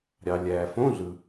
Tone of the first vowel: low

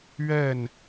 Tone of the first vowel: falling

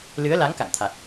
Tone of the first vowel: rising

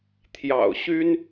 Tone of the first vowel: low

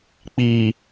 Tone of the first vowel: low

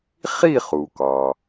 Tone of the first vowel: falling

